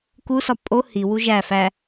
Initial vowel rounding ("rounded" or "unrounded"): rounded